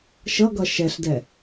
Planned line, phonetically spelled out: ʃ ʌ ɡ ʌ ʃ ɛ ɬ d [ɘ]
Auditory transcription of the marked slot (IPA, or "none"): ɛ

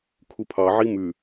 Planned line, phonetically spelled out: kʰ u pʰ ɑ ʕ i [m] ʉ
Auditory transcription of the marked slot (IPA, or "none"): m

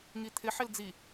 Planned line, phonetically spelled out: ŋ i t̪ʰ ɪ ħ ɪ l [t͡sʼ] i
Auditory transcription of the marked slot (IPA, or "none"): d͡z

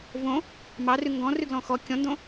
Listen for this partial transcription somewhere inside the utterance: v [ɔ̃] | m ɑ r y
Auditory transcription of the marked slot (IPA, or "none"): õ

